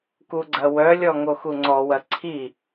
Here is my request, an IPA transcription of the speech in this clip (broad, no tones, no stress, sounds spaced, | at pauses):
k u ɡ͡ǀ ɐ w œ lʲ ɔ ŋ o x u ŋ͡ǀ ɔ w ɐ ǀʰ i